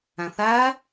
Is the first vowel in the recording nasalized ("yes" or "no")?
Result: yes